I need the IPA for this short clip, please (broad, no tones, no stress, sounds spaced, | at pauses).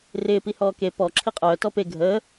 r ɪː p i h ɔː k e p ɔ ǁʰ i qʼ œː t ɔ p e ɡʱ əː